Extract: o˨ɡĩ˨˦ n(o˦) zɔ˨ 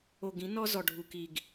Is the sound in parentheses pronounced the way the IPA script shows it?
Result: no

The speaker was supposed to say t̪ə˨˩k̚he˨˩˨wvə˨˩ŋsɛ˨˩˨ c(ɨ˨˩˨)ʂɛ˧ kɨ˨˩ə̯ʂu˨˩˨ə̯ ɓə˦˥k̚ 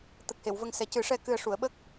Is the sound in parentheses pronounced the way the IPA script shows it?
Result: no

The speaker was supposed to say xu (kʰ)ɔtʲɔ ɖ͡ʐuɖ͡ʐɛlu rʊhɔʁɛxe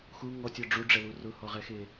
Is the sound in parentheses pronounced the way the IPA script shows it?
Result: no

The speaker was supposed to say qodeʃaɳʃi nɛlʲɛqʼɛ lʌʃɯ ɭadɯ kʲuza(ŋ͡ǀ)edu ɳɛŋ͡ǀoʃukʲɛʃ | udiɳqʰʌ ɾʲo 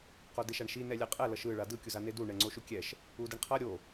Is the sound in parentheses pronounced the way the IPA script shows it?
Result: no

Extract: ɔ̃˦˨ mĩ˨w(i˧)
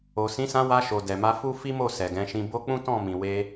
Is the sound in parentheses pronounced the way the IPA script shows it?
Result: no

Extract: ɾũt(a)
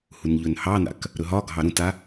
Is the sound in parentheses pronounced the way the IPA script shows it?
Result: yes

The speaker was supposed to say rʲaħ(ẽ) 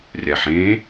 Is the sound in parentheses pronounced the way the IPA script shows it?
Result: yes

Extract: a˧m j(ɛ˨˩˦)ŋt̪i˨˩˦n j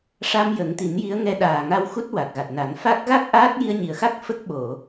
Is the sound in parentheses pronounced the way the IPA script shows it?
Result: no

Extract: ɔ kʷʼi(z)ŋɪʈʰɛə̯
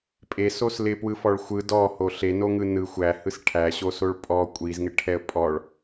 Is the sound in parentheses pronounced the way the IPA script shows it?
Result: yes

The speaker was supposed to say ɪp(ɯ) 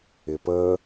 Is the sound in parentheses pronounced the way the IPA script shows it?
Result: no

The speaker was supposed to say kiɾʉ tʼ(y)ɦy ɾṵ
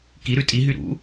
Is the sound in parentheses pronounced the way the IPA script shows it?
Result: no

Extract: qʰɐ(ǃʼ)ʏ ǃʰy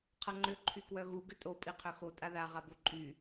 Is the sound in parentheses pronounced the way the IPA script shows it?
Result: no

